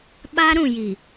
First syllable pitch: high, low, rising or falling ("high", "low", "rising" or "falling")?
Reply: high